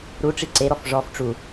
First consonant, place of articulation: alveolar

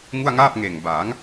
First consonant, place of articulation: velar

